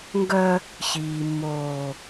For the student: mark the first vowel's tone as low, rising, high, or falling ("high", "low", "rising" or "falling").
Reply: high